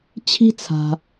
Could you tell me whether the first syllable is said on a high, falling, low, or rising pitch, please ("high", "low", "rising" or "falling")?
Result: high